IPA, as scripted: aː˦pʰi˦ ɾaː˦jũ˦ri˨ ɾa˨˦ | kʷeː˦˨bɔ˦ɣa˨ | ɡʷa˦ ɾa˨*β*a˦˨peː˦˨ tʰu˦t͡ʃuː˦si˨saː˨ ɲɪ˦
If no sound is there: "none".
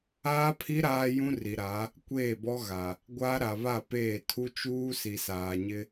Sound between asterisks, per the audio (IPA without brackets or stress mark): β